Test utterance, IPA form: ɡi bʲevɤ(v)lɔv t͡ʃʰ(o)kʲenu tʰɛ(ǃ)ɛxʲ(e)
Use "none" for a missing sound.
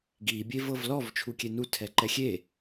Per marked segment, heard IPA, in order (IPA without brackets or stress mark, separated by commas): v, u, ǃ, e